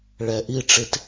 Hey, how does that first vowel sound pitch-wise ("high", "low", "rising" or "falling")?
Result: low